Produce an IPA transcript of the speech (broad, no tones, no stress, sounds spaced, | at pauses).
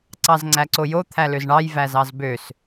ǀ ɑ z ŋ͡ǀ æ ǀ o j o t̪ʰ æ l ø z ɳ ɑ j v æ z ɑ z b ø s